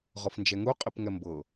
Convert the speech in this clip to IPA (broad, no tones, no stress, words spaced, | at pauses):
ʁɔfnd͡ʒɛŋu qʼipŋɛmbɤ